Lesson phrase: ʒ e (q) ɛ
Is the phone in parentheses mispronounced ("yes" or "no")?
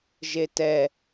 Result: yes